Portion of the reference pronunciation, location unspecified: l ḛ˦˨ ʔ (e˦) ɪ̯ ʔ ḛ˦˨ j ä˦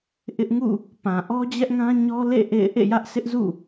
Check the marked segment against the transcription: incorrect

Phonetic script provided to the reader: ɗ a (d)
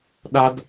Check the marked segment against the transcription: correct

